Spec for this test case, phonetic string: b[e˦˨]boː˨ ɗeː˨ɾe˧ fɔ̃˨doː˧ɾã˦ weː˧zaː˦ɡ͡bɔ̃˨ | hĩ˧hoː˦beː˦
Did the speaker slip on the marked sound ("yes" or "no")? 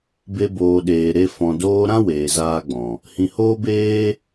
yes